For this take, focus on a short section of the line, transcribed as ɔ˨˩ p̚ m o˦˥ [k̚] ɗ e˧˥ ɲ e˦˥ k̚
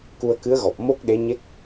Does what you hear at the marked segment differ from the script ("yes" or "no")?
no